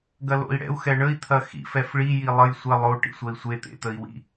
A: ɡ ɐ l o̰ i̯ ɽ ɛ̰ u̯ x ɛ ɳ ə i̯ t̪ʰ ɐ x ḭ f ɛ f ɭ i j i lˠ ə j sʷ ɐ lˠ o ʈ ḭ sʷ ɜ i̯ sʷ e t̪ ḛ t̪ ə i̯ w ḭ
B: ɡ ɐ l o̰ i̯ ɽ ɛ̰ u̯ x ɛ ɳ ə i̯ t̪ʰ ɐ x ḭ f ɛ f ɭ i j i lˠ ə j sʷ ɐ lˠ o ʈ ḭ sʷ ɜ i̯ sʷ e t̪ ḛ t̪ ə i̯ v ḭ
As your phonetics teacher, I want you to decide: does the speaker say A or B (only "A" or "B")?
A